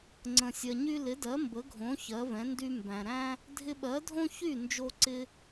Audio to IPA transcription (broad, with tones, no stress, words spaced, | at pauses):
ŋ͡ǀə̃˩sʲɜ˩ɲy˧ lɪ˩˥dɜ˩˥mbə˩˥ɡʱõ˩˥ çɜ˩˥vɛ̃˩˥ndy˥ mbæ̃˩ɾæ̃˥ | dʱɪ˧ɓɜ˩˥dʱõ˥ çy˥˩ nd͡ʒo˧ǀɪ˧